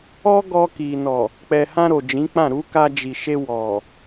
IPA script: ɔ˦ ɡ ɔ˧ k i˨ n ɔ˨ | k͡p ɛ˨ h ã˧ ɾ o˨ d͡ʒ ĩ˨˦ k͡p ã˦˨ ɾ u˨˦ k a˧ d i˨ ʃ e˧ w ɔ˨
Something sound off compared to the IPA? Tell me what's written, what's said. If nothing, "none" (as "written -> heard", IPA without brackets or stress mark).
d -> d͡ʒ